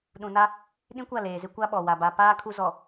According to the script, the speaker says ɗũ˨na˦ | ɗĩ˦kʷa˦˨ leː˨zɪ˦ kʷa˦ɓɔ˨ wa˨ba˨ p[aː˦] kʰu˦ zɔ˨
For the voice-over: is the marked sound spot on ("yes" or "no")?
yes